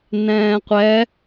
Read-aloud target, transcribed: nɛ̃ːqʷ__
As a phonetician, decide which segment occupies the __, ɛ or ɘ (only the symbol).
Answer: ɛ